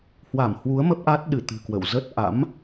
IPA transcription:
hwa˧˩m hwu˨˦ə̯ mə˦˥p̚ʔa˦˥t̚ ɗɨ˧˩t̪ɨ̤˨˩ kwə̰˧˨wzə˦˥t̚ ʔa̰˧˥m

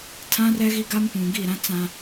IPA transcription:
tʰã˦rɛ˦ɣi˦ɡa˦m pũ˨ɡi˦˨ɾã˦ t͡sã˦

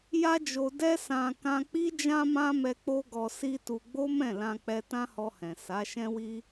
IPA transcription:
ja˦d͡ʒo˧ dɛ˦sã˧ kã˧k͡pi˦ d͡ʒã˦mã˦mɛ˧ k͡po˦ɡɔ˧si˦tu˧ ɡ͡bo˦mɛ̃˦˨lã˧ k͡pɛ˧tã˦hɔ˧hɛ̃˨ sa˨˦ʃɛ̃˦wi˦

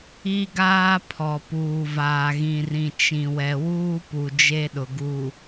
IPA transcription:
i˦ɡaː˦pʰɔ˨ puː˨vaː˨ɣĩ˨rĩ˨ t͡ʃĩ˨ wɛ˨wuː˦pu˨ d͡ʒe˦ɗʊ˨ɡu˨

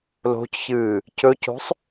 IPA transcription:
lo̤cçɨː | cɵco̤sˤ

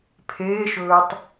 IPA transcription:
pʰeːʃɵːtˤ

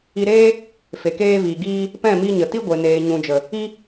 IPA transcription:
i˧ɾeː˦ | fe˨keː˧viː˨ ɡiː˧ | pɛ̃˦˨mi˧ ɲə˨ ti˦ɡʷe˨ neː˨ɲũ˨d͡ʒə˨ | i˦

